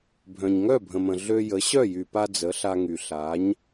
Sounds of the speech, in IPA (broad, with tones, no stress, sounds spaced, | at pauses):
bʱ œ̃˩ ɲ ŋ œ˥˩ bʱ ə̃˩ m ə̃˩ ɮ ø˧ j ə˩˥ ɕ œ˥˩ j y˩ p a˧ d͡z ə˩˥ ɬ a˧ ŋ y˩ ɬ a˩˥ ɲ